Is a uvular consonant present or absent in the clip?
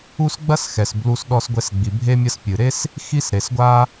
absent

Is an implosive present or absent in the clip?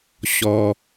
absent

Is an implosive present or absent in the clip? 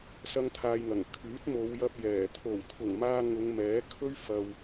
absent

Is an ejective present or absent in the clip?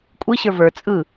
present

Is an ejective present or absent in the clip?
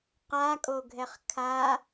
present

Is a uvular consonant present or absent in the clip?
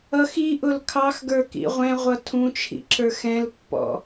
present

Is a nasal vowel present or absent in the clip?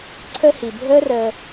absent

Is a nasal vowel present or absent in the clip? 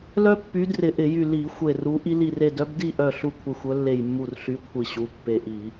absent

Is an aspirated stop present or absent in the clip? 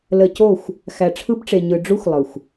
present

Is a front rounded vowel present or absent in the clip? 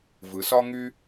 present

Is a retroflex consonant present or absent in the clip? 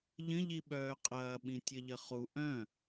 absent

